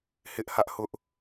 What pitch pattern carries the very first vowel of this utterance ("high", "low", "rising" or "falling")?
high